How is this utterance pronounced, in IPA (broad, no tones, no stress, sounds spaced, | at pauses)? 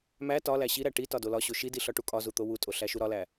m æ t ɒ l æ ɕ i ɾ æ ʈ i t ɒ d o l ɒ ɕ o ʃ i d i ɬ ɒ ʈ u kʼ ɒ z u t̪ o w u tʼ o ɬ æ ʃ u ɾ ɒ l æ